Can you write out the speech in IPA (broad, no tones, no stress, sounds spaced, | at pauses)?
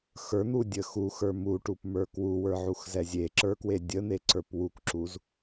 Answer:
x ə˞ n̪ u dʲ ə x u x ə˞ m u ʈ u p m ə˞ k w u w ə˞ ʕ u x z ɛ zʲ e ǁ ə˞ k w e dʲ ə n̪ e ǀ ə˞ p w u k ǁ u z